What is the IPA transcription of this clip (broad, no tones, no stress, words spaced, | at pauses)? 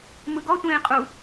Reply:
mɯɡɔ tʷẽːqʼu